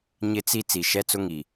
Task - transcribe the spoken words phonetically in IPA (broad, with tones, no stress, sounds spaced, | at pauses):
ɲ ɪ˦ t͡s i˦ t͡s i˨ ʃ ɛ˦ t͡s ʊ˦ ŋ i˨